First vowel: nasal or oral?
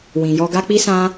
nasal